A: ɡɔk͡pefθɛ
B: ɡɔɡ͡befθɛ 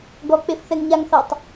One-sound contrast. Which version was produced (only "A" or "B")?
A